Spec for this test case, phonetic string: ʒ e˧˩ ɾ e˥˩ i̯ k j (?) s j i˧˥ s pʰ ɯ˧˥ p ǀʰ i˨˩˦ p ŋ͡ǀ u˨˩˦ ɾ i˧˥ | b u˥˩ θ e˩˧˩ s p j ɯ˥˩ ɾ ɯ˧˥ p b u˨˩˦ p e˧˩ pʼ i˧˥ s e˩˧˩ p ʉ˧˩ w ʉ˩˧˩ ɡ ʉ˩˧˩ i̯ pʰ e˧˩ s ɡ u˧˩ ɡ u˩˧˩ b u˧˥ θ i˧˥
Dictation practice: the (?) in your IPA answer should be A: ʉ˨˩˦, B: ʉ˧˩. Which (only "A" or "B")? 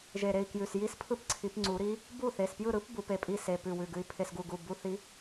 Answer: B